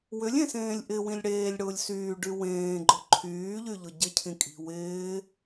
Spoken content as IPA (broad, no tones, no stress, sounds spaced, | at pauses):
w ʏ lʲ ẽ s ẽː lʲ ʔ ɪ w ĩ lʲ ɽ eː lʲ ɽ ʊː lʲ s yː ɖ y w ẽː ɡ͡ǃ ʊ ǃʰ yː ʎ y ʎ ʊ ɟ ɪ cʰ ĩ kʼ i̤ w ɪː